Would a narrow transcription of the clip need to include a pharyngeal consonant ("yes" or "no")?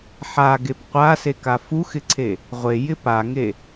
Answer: yes